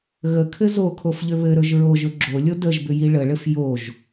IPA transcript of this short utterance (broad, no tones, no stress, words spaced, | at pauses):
ɣəkʰɘ zokʰofʎʏ βɘɾɵʒ ɹoʒɵ ɡ͡ǁolʲo dəʒbʏji ɭəɭɘf joʒ